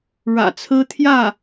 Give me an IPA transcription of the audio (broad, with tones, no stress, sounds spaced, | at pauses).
ɻ ä̰˨˩ t͡sʰ ɹ̩˥ t̪ʰ j ä˥˩